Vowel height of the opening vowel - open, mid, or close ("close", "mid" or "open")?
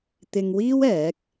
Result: close